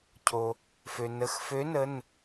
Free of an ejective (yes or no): yes